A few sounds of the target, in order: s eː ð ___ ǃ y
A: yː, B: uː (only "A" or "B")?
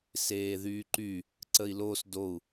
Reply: A